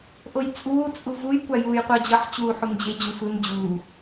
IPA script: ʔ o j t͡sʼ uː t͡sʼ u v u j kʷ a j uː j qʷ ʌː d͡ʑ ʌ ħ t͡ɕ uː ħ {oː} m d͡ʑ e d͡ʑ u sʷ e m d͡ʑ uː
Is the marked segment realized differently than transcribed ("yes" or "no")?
yes